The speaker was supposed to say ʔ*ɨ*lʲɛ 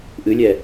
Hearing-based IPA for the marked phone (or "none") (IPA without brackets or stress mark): ɨ